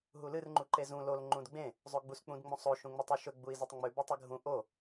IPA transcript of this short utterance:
ɦ u l ɨ r ŋ͡ǃ u ǃ e z ũ l o l ŋ͡ǃ ũ d ɡ͡b ẽ | zˤ o ɡ͡b u s k͡p ũ d ŋ͡m õ sˤ o ʃ ũ ŋ͡m o tˤ ʉ ʃ ɵ ɡ͡b u i̯ z ɨ tˤ ŋ͡m ʉ b u tˤ ɨ ɡʱ ũ ʔ o

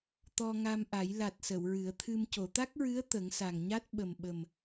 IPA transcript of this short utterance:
t̪ ɔ˧ ŋ a˧ m ʔ a˨˩˦ j l a˨˩ t̚ s ə˨˩˨ w ɹ ɨ˨˩˦ ə̯ t̪ʰ ɨ˧ m c o˨˩˨ t̪ a˦˥ k̚ ɹ ɨ˧˥ ə̯ t̪ ə˨˩˦ ŋ s a˨˩ ŋ ɲ a˦˥ t̚ ɓ ə˨˩ m ɓ ə˨˩ m

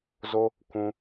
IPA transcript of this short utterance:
z o˦ | kʷ ũ˦

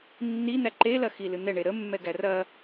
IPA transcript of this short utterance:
nː i n̪ æ ǃ e l ɐ x i l ɨ n̪ ɛ ɳ e ɾ ə mː ɛ ɡ æ r ɐ

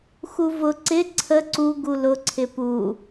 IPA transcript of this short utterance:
x u v ʊ ǀ ɪ ǀʰ ə ǀ u ɡ u l ʊ ǀʰ ɪ p u

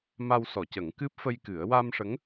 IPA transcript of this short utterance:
m a˧ w s ɔ˨˩˨ c ə˨˩˦ ŋ k ɨ˦˥ p̚ f ə˧ j k ɨ˨˩˦ ə̯ w a˧ m ʂ ə˧˥ ŋ

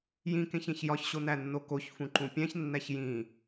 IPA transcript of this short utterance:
j ĩ k ẽ ç ẽ ç j ɒ ç ɕ o n æ nː o k o ç f ũ ǃ ũ pʲ æ̃ ç nː æ ç j ĩ

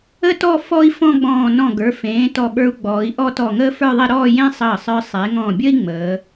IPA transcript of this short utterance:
ə˥ t ɔ˥˧ f ɔ˥ i̯ f ɔ̃˥˧ ɡ͡b ɔ̃ː˧˩ n ɔ̃˧˩ ɡ ə˞˩˧ f ẽː˩˧ t ɔ˧˩ ɓ ə˞˧ u̯ ɡ͡b ɔː˩˧ i̯ ʔ ɔ˥˧ t ɔ˧˩ ŋ əː˥ f ə˞˥˧ ðˤ e˥˧ ɾ ɔː˥˧ j ẽ˥ sˤ əː˧˩ sˤ ə˞˧ sˤ e˩˧ ŋ ɔ̃˧˩ bʲ ə˥ i̯ ŋ͡m əː˩˧

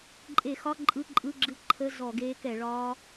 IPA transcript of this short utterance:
ǃʼ e˧˩˧ x ɒ˧˥˧ ǃʼ ɯ˧˥˧ ǃʼ ɯ˧˥˧ ɡ͡ǁ ɯ˦˥ ǃʰ ə˧˥˧ z ɔ˧˩˧ ɡ eː˦˥ k ɛ˧˩˧ ɭ ɒː˦˥

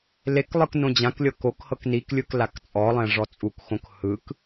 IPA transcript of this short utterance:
l e k lˠ ɯ k n õ d͡ʑ ã k lʲ ɤ k o k h ɤ k n i k lʲ ɯ k l a k t͡sʼ ɔ lˠ ɛ̃ ʐ ɔ t͡sʼ u k x õ k h ɯ k

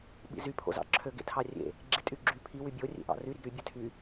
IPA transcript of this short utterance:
ɓ ḭ z y pʰ o̰ z ɑ̰ ǁʰ ø ɡ ḛ tʰ ɑ rʲ ḛ | ɡ͡ǁ i tʼ y ɡ͡ǁ y pʰ i w y bʲ o rʲ ḛ ʔ ɑ̰ r y ɾ i ɡ ɾ y bʲ ø tʰ y

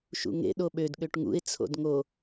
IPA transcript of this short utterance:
ʃ ṵ ŋ ḛ ɗ o ɓ ø d ɠ ø ʈ ŋ ṵ ɪ̯ t͡sʰ o̰ d ŋ o

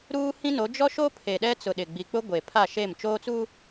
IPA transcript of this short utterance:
ɾ uː˦ h ĩ˦ n o˨˦ d͡ʒ ɔ˦ ʃ o˦ pʰ e˨ ɗ ɛ˦ t͡s ʊ˨ ɗ ɪ˨ ɡ͡b i˨ k͡p ʊ˦ ɡʷ e˨ pʰ a˦˨ ʃ e˦˨ m t͡ʃ oː˦ t͡s u˦

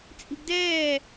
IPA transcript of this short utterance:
t͡sʼ i̤ ɡ d ɛː

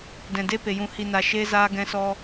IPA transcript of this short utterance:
d ɛ̃˨ d e˦ p e˨ j ũ˧ h i˧ n a˧ ʃ eː˦ z aː˦ ɡ ɛ̃˦ s ɔ˦

